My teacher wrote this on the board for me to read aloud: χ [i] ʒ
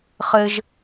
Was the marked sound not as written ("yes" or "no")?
yes